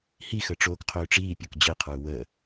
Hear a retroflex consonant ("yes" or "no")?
yes